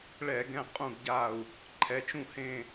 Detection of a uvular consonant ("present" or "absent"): present